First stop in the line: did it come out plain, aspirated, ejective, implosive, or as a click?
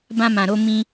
plain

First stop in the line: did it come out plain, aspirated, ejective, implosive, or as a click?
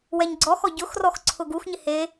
click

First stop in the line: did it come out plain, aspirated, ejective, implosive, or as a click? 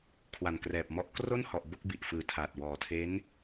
aspirated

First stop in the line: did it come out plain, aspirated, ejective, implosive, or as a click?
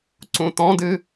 click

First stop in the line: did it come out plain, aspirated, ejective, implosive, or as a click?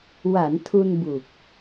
aspirated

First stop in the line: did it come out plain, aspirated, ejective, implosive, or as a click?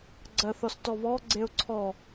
click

